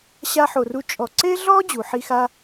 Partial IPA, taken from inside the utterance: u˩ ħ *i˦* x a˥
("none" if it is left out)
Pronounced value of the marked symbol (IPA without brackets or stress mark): i˦